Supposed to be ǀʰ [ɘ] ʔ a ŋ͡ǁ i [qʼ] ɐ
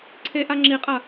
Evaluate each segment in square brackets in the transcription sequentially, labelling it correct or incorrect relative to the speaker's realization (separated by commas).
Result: incorrect, correct